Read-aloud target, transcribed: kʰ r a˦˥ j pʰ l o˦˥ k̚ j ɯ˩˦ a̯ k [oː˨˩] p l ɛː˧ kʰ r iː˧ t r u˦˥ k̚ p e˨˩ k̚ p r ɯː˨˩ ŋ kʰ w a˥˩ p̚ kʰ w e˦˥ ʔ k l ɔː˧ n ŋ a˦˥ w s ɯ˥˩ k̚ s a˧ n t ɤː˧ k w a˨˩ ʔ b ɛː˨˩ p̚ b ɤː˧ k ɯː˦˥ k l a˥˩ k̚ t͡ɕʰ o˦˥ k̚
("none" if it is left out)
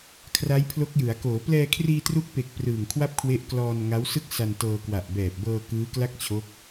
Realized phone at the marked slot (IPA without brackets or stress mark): oː˩˦